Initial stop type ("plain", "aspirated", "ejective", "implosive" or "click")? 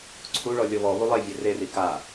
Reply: click